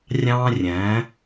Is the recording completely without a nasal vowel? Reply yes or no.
no